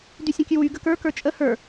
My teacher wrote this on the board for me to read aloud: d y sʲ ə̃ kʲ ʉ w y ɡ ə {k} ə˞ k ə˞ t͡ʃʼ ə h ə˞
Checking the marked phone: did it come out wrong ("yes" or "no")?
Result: no